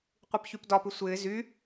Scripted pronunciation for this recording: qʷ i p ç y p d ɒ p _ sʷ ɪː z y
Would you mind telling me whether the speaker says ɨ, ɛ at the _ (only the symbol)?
ɨ